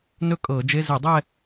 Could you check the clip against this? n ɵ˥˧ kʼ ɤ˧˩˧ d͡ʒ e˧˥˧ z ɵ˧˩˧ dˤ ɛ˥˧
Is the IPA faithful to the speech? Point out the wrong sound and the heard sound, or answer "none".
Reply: none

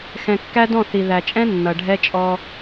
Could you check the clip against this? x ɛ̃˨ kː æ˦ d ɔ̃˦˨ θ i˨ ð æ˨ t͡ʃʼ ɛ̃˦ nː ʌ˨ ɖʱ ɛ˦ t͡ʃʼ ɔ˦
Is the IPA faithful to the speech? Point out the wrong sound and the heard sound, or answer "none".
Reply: none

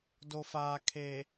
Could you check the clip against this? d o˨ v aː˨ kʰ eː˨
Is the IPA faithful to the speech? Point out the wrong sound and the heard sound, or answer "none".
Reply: v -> f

